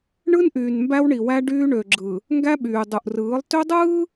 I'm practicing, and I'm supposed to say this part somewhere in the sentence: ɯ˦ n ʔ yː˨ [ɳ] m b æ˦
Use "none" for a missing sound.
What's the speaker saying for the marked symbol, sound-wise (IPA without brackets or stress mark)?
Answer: n